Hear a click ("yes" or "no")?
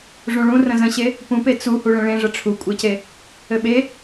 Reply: no